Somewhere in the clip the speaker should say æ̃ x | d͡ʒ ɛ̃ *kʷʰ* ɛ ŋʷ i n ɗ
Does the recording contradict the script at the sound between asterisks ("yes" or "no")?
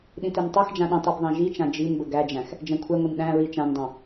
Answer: no